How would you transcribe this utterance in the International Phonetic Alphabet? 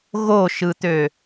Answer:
ɣ o ʃ ɯ t̪ ø

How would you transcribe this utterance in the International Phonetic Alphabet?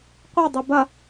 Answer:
qʷ e dˤ i b ɐ

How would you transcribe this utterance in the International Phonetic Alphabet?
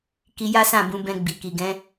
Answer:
k i˧ j a˦ s ã˦˨ b ũ˨˦ b ɛ̃˧ ɡ͡b i˨ k i˨ ɡ ɛ̃˨˦

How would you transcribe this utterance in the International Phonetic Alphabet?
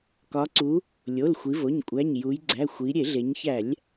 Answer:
k ɒ˩˧ ǀ u˩˧ | lʲ o˩˧˩ l xʷ i˩˧ v o˩˧˩ ɲ kʷʼ æ˩˧˩ ɲ j u˩˧ j ɡ͡ǀ æ˩˧˩ xʷ i˩˧ ɾʲ e˧˩˧ ɮ e˩˧ ɲ ç æ˧˩˧ lʲ

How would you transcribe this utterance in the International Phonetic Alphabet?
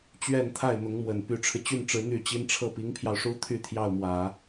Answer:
t͡ɕ ɥ ɛ˥˧ n t̪ʰ a˥˩ ɪ̯ n̪ ʊ˧˥ ŋ m w ə˨˩ n p y˧˥ ʈ͡ʂʰ ɻ̩˧ t͡ɕ y˥˩ n ʈ͡ʂ ɻ̩˧˥ n̪ y˥˩ t͡ɕ i˥ n ʈ͡ʂʰ ɤ˥˩ p i˧˥ ŋ pʰ j ɑ˧ ʊ̯ ʂ u˥ t̪ʰ y˥˧ t̪ʰ j ɑ˥˩ ʊ̯ m w ä˨˩˦

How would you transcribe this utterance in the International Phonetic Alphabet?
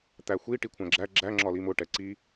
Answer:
t̪ æ xʷ i ʈ i kʷʰ æ̃ ɡ͡ǁ æ ɡ͡ǁ æ ŋ͡ǁ ɒ l i m ʊ ʈ ɛ ǀ i

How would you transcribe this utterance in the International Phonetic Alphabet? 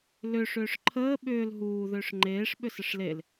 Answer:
l ʏ ʂ ʏː ʂ ǃʰ əː ɓ ʏː l ɦ uː ð ʏː ʂ ŋ͡ǃ eː ʂ ɓ ʏ s ə ʂ l e l

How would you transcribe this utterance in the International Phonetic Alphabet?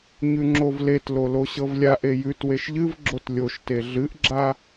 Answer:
ɲ ʉ ŋ͡ǁ o v l e t l o l o ɕ ɤ v lʲ a ʔ e j ʉ t w e ʃ ʎ ɨ v ɡ͡ǁ o t lʲ o ʃ t e ɮ ɨ ʔ ɡ͡ǁ a

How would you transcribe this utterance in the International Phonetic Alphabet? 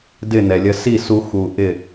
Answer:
d ɪ˦˨ n ɛ˨ lʲ ə˧ s i˦˨ s u˧ x u˨ ʔ ɪ˦˨

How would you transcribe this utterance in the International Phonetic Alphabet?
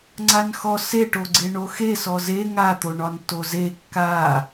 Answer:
ŋ͡ǀ a n x ɔ s e ʈ o ɡ͡ǀ e ɳ o x e s ɔ z e ŋ a t̪ o ɳ ɒ n t o z e kː a

